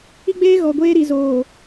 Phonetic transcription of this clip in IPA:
i˦ ɡ͡b eː˦ ɣ ɔ˨ ɡʷ eː˦ ɾ i˨ z oː˨

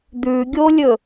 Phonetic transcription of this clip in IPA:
d̪ ʉ ɡʲ o lʲ ɵ

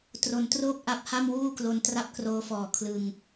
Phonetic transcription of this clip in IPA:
t r o˩˦ n t r oː˥˩ k̚ ʔ a˦˥ p̚ h a˥˩ m w uː˥˩ k l o˧ n t r a˥˩ p̚ k r oː˦˥ f ɔː˨˩ kʰ l ɯ˧ ŋ

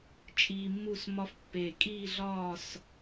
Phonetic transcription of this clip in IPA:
t͡ʃʼ iː˧ mː u˥˧ s m ɒ˥ f pː e˧˩ kʼ iː˥˧ ɮ ɒː˥˧ s

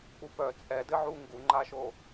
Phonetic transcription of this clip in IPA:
k͡p u p œ t͡sʼ ɛ d ɘ ʕ u ŋ ɡ u ŋ͡ǃ a ʃ o

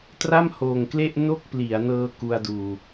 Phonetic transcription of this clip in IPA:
t r a˥˩ m h oː˨˩ ŋ k l e˥˩ ʔ n o˥˩ k̚ p l i˩˦ a̯ n ɤː˧ k u˧ a̯ d uː˨˩

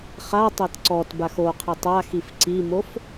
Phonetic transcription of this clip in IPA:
χ a tˤ e t ǀ ɔ t b a x o qʰ i tˤ a x i f ǀ i m o f

